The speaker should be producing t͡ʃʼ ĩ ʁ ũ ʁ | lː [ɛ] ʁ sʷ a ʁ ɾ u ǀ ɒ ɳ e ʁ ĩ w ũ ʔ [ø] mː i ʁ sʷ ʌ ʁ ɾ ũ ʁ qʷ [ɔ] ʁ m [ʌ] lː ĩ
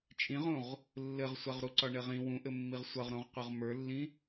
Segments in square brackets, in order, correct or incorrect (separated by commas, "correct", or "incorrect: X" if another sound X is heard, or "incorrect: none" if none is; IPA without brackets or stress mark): incorrect: ɘ, incorrect: ɘ, incorrect: ʌ, incorrect: ə˞